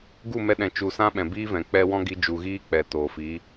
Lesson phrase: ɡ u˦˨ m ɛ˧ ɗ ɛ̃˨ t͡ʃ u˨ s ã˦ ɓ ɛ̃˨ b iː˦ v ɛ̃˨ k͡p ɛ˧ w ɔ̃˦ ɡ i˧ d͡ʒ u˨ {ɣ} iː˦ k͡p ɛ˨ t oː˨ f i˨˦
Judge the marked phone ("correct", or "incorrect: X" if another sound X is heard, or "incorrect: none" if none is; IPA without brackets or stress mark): correct